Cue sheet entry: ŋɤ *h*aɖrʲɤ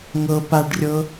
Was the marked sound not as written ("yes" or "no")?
yes